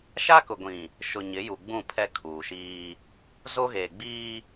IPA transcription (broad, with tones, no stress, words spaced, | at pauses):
ʃa˦kʊ˨ ɡʷĩ˨ | ʃʊ˨ ɲɪ˨˦ju˨ɡ͡bũ˦˨ pʰɛ˦ kʰuː˨ʃiː˦ | zo˦ɣeː˨ɡ͡biː˦